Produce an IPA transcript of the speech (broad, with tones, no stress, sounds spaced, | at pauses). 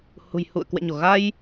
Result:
h ṳ˨˩ j h ṵ˧˨ ə̯ k w ɛ̰˧˨ ɲ o˧˩ ɣ a˧ j